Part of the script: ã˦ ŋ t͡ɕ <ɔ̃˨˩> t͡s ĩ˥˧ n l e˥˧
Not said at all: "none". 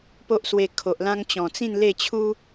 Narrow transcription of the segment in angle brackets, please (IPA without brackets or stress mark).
ɔ̃˨˩